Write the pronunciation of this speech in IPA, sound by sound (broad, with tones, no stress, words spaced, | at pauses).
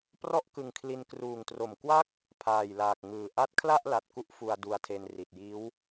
prɔ˥˩ʔkɯ˧ŋkʰli˧n kruː˨˩ŋtro˨˩mkwa˥˩k̚ | pʰaː˨˩jlaː˨˩k̚ŋɯː˨˩ ʔa˦˥t̚kʰla˥˩ʔ la˨˩t̚ku˦˥ʔ fu˧a̯du˧a̯tʰe˧n ri˨˩t̚jiː˦˥w